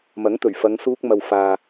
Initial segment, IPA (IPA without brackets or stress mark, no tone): m